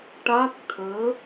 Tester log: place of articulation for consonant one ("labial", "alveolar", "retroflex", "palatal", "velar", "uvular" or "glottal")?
retroflex